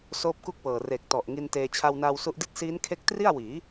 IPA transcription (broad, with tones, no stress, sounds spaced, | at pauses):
s oː˦˥ p̚ k u˥˩ k̚ w ɤː˨˩ r e˨˩ k̚ t ɔ˨˩ ʔ ŋ i˧ n t eː˧ t͡ɕʰ a˧ w n aː˧ w s u˦˥ ʔ d i˥˩ t̚ s iː˦˥ n kʰ e˦˥ k̚ t r i˥˩ a̯ w iː˩˦